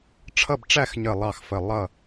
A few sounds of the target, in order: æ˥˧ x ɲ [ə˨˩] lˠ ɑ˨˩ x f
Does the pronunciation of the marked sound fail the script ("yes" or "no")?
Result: no